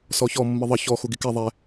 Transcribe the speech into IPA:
sɔçɔ mːɨðˤə çɔ xuɡikɛ ðˤɛ

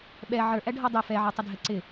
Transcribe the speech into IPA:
ɓɛ ʕə˞ʔæɖʱɔ dˤʊ fɛʕə˞tˤɪdʱɛ ǀɪ

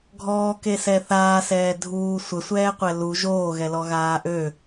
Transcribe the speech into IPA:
ɡʱɔːkesɛ θaːsɛː dʱuː sʷəsʷɛːqʷɛ lu ʒoːɣɛlɔɣaː ʔø

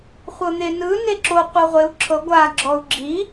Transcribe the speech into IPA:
χʷɤn̪enɯ neǁo qʷɤʁʷeu̯ ǁʰɤ ɡʷa ɡ͡ǁɔu̯ɡ͡ǁi

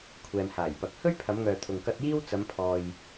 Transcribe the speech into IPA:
kʷʰɛː˨mhaː˨˩jpɐ˨˥k̚ hɵ˥ɥpʰɐ˨˧mŋœː˨ t̪ʰʊ˨ŋ kɐ˧t̚ jiː˥w t͡sɐ˨˧mpʰɔː˨j

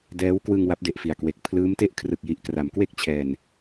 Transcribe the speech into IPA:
dɛː˦˥wkwɯ˧ŋ wa˦˥p̚de˨˩ʔfi˨˩a̯kwe˨˩k̚ pʰlɯː˦˥mte˥˩ʔ kʰrɯ˨˩k̚ji˨˩ʔkra˩˦m kwe˥˩k̚ t͡ɕʰɛː˧n

